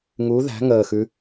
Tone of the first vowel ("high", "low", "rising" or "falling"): rising